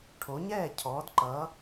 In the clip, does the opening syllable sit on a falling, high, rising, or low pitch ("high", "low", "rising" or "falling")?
rising